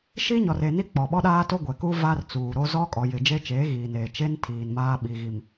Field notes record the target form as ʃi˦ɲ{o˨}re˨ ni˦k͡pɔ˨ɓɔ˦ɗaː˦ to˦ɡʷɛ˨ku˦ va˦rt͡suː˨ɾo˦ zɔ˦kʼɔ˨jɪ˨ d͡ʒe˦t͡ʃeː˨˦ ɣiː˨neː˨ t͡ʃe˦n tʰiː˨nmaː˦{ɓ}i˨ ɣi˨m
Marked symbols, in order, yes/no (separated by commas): no, yes